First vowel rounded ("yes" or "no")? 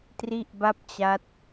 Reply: no